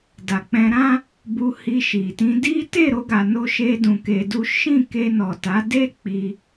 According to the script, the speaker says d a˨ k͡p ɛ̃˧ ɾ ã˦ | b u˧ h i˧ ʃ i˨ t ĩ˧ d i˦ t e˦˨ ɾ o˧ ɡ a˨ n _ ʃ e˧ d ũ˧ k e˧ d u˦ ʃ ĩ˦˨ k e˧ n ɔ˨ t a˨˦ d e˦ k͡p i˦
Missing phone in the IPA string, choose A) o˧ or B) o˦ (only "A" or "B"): A